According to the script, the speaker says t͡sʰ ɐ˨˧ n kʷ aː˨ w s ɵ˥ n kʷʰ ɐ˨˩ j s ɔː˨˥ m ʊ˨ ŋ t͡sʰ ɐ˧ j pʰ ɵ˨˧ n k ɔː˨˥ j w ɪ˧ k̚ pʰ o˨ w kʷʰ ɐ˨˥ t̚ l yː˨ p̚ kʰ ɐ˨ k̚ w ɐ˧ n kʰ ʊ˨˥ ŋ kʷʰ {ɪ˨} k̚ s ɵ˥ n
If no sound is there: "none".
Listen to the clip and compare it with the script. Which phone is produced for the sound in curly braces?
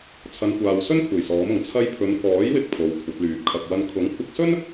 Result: ɪ˧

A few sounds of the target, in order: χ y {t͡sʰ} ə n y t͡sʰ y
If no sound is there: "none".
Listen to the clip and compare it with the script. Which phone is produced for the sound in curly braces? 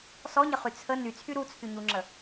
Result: t͡sʰ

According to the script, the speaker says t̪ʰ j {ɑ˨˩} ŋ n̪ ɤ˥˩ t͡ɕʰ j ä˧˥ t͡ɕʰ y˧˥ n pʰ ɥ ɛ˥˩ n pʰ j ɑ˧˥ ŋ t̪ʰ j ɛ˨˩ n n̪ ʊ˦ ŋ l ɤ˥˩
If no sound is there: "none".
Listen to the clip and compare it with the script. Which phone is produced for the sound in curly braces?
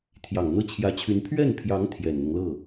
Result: ɑ˨˩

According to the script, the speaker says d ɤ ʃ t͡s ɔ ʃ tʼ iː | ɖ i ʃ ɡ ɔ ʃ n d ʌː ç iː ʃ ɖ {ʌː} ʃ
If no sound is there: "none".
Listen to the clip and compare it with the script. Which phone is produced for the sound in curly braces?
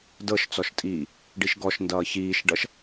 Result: ʌ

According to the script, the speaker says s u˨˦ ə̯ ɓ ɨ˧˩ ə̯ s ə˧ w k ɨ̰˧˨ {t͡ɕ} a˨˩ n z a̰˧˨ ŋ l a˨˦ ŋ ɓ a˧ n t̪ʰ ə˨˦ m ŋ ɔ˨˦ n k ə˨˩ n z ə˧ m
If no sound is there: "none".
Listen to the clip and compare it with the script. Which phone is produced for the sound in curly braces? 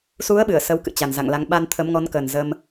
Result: t͡ɕ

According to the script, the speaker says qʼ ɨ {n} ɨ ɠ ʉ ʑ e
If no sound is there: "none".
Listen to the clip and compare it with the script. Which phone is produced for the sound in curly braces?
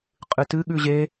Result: t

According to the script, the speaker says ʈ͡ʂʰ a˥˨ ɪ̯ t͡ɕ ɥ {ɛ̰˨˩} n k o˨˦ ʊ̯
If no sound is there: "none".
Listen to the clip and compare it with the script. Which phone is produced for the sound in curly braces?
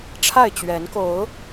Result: ɛ˨˦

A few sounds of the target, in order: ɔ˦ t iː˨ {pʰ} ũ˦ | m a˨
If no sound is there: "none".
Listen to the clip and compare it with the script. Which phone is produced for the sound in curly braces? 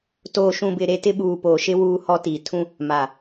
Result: tʰ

